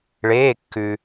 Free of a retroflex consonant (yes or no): no